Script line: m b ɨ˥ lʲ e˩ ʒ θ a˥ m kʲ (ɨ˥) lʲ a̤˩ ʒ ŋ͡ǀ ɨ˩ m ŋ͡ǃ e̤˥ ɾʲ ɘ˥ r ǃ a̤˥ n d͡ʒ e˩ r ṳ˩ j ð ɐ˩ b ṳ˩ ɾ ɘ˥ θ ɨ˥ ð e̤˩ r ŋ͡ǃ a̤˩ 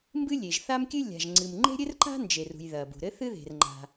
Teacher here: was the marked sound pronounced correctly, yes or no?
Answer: yes